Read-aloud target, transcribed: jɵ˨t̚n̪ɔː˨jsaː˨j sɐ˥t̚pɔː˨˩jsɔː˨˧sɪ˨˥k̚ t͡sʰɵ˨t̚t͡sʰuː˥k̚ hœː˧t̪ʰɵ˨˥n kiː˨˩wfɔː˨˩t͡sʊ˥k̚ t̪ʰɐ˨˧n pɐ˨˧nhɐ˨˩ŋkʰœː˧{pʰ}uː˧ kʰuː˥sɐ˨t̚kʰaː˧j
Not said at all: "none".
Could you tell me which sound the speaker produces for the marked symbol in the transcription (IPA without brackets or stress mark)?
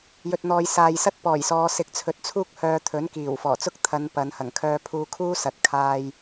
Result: pʰ